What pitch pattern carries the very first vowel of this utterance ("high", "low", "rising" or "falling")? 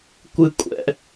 high